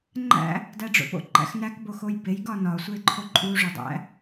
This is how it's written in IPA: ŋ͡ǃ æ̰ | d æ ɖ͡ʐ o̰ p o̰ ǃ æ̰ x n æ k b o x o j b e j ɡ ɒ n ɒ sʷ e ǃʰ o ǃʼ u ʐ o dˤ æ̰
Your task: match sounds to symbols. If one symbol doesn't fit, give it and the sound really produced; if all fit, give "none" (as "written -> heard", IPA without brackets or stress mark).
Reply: none